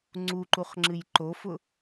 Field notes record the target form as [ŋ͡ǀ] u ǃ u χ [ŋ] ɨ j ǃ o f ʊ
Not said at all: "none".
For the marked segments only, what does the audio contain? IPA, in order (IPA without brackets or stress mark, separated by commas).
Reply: ŋ͡ǀ, ŋ͡ǁ